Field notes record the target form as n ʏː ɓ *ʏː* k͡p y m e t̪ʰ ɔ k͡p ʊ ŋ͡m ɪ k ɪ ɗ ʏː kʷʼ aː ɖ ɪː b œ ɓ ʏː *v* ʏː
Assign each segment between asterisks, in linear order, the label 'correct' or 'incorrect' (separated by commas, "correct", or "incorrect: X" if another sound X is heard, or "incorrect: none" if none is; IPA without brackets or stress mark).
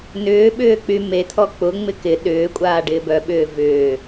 correct, correct